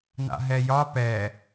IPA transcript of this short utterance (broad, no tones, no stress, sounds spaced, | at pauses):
n a̰ ɦ ɛ j ɒ p ɛ